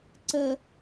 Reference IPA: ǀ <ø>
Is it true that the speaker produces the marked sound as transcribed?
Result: no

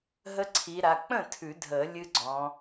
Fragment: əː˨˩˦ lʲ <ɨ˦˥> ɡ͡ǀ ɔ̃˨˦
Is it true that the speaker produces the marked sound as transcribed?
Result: yes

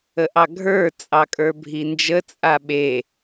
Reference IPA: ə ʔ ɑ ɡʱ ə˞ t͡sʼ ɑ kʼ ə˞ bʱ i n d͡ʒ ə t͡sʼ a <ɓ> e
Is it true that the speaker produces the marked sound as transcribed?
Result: yes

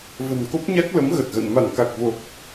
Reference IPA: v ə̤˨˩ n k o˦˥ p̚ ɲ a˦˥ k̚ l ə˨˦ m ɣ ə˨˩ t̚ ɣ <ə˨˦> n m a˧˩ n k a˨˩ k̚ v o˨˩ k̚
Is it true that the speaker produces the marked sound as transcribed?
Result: no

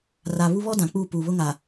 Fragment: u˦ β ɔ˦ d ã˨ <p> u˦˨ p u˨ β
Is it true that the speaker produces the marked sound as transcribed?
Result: no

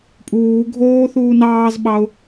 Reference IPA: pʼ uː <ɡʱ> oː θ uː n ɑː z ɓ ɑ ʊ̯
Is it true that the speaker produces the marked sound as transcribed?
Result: yes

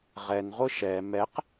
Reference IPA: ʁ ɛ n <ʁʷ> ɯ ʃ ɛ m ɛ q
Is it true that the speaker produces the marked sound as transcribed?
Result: yes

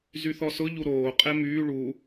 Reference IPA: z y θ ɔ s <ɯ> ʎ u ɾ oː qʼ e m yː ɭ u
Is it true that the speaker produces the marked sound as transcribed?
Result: no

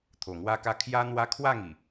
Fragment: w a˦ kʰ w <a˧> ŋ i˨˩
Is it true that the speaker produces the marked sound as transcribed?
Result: no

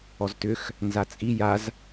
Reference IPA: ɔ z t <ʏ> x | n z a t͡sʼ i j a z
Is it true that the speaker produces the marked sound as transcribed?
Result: yes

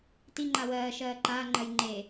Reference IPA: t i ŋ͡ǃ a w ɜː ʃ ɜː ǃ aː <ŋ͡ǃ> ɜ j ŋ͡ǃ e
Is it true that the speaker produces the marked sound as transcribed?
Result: yes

